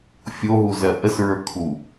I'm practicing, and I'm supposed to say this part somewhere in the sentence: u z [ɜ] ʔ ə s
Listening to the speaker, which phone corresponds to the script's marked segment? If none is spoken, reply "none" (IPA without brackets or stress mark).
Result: ɜ